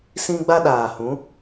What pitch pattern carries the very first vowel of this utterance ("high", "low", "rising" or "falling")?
high